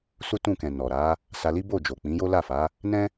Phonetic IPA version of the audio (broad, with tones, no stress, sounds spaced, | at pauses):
s u˦ t ũ˦˨ k ɛ̃˨ n ɔ˨ ɾ a˨˦ | s a˧ l i˦ b o˦˨ d͡ʒ o˨ k͡p ĩ˨˦ j o˦ l a˦˨ f a˨˦ | n ɛ̃˦